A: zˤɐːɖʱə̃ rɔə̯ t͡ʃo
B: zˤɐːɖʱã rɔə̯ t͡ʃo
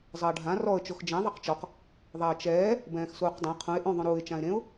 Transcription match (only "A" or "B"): B